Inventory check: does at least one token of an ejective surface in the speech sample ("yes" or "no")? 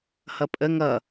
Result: yes